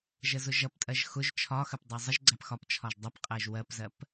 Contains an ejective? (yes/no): yes